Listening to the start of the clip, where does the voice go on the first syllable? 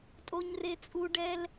high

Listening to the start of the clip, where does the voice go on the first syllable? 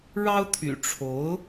high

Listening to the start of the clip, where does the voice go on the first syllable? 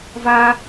high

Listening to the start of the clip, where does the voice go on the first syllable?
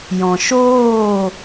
low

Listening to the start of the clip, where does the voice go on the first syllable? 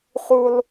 high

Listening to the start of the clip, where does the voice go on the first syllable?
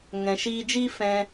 low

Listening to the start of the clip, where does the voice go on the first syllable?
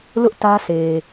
high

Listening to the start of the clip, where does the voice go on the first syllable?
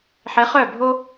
rising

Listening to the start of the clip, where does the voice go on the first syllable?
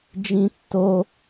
high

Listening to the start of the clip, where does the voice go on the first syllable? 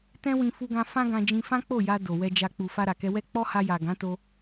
high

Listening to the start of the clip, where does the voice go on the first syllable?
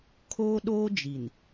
high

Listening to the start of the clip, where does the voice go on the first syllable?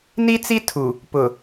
high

